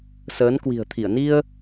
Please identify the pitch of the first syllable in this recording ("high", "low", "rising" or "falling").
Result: rising